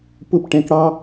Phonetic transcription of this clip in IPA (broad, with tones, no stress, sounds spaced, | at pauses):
p ʊ˥˧ p ʈ ɛ̃˨˦ k ɽ ɑ˥